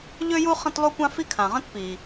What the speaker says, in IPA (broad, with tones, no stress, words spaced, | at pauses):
ʎø˥ju˥ χə̃˥tlˠu˥kʷã˥ fi˥kʰã˩ʁə̃˥t pi˩